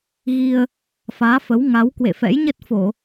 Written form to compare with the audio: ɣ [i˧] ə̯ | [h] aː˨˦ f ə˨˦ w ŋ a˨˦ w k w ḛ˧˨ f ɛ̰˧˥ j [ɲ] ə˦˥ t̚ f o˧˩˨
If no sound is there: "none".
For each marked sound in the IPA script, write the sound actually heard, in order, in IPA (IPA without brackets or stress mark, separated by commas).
i˧, f, ɲ